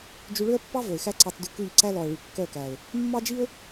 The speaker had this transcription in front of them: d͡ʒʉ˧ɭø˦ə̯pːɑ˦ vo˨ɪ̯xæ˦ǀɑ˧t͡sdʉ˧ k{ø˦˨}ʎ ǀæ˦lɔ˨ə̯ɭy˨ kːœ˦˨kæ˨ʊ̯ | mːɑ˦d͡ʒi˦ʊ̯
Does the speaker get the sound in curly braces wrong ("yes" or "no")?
yes